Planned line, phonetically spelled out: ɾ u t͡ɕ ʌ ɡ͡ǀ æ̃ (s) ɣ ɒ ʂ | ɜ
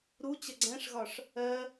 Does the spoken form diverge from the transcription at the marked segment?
yes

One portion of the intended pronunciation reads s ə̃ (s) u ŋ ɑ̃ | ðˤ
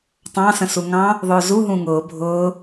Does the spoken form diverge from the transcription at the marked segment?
no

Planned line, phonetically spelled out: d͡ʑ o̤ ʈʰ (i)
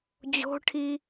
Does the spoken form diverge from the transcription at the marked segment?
no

